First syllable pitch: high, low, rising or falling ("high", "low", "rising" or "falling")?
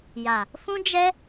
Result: low